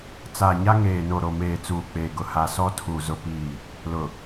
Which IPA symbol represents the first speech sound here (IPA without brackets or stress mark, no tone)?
t͡s